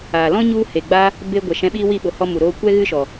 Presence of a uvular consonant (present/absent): absent